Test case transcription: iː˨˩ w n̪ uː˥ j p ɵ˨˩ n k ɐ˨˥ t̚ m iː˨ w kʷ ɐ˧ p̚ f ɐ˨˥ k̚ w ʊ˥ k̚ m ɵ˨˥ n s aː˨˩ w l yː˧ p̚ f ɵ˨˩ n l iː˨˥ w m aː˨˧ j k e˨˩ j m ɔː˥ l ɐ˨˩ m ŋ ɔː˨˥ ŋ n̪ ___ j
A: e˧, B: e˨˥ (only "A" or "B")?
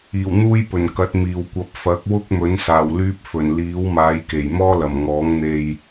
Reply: A